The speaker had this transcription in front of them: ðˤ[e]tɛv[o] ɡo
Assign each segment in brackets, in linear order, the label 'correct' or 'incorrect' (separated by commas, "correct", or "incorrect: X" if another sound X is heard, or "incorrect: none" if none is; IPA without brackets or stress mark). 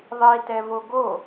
incorrect: i, correct